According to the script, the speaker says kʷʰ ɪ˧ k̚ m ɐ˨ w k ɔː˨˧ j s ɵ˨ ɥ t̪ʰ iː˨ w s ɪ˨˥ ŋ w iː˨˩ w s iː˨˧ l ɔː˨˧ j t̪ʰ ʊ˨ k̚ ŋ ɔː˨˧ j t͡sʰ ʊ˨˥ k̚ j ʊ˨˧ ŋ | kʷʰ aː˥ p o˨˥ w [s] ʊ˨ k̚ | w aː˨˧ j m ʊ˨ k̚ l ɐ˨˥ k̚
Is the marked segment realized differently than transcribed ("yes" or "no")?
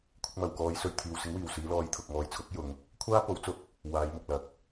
yes